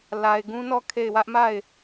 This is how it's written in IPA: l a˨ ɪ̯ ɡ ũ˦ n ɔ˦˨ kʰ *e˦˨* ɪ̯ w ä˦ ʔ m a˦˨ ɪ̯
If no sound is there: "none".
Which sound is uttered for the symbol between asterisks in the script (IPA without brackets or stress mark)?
e˦˨